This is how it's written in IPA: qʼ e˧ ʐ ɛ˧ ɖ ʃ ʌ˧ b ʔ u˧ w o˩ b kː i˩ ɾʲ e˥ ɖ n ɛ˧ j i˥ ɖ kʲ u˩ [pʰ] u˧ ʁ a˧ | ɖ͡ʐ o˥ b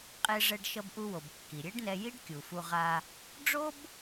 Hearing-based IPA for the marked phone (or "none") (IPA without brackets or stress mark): f